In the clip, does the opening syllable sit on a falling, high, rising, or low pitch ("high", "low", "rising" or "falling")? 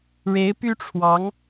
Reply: rising